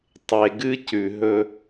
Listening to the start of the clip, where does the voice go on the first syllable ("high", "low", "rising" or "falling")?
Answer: low